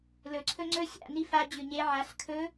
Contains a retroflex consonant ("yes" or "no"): no